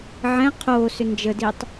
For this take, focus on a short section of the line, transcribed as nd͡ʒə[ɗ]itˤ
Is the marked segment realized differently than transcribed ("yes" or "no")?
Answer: yes